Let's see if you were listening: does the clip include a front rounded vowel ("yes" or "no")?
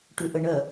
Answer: yes